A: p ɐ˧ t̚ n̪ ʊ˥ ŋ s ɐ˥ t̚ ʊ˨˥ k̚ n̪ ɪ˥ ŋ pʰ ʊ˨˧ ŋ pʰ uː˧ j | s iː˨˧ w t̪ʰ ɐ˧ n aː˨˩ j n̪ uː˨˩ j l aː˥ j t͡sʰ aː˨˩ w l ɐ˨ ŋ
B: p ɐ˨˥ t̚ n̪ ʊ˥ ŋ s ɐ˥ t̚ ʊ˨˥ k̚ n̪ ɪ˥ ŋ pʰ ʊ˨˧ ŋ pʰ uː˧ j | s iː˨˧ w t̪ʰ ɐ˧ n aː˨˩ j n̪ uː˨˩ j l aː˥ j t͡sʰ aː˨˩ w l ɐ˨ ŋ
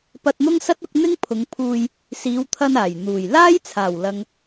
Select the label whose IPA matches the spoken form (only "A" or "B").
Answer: A